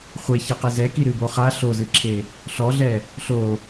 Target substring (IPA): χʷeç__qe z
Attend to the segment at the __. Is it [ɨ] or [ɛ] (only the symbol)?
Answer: ɛ